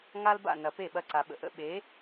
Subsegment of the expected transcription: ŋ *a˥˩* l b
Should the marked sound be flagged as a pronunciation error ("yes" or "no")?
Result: yes